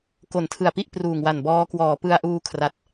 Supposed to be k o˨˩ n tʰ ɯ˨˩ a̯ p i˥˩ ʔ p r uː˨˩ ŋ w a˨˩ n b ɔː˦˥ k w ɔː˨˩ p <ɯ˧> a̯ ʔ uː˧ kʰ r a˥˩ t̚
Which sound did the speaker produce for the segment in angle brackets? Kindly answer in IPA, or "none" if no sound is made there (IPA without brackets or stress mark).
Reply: ɯ˧